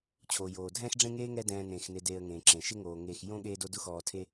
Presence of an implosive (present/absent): present